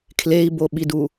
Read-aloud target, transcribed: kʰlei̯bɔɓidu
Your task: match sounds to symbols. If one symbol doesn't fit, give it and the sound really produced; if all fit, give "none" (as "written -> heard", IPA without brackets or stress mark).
ɔ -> o